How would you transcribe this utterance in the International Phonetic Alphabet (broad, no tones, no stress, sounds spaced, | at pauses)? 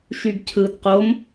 ʃ y ɡ cʰ ɯ d q o m